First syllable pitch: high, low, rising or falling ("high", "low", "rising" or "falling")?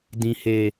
low